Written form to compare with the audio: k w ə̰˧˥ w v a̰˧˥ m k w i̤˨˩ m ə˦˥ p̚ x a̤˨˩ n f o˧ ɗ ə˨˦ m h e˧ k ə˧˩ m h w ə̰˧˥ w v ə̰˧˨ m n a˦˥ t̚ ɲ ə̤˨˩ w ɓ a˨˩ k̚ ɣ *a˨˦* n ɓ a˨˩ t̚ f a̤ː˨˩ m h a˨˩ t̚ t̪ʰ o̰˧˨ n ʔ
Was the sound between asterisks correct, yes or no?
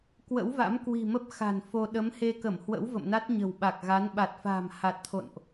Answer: yes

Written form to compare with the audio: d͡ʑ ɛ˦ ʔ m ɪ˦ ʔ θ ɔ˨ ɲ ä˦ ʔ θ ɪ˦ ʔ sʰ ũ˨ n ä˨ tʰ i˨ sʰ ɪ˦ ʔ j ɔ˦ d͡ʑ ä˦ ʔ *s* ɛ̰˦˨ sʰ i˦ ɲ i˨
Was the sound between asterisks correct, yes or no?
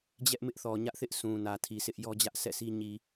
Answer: yes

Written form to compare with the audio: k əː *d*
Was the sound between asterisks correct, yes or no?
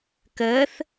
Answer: no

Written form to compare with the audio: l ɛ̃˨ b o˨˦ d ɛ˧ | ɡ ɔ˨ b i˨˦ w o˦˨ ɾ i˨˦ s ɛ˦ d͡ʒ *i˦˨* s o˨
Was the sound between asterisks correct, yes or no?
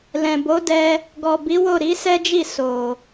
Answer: yes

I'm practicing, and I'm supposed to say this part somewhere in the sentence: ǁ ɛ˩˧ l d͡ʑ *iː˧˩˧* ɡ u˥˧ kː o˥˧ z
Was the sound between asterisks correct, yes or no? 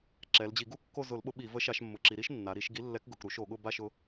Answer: no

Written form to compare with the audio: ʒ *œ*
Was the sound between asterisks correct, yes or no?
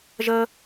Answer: no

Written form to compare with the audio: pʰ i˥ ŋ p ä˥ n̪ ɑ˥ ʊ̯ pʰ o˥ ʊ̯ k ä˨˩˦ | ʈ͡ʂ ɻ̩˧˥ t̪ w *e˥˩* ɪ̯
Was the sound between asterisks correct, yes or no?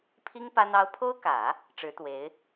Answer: no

